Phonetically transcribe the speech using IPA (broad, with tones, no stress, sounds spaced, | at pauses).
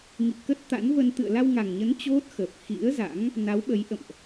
ŋ ḭ˧˨ k ə˦˥ t̚ t̪ a̰˧˥ n v ə˧ n t̪ ɨ̰˧˨ ə̯ l a˧ w ŋ a˨˩ ŋ ɲ ə˨˦ n t͡ɕ o˦˥ t̚ x əː˨˩ p̚ x ḭ˧˥ ə̯ z a̰˧˥ ŋ | n a˨˦ w ɓ ə˨˦ j ʔ ə̰˧˨ m ʔ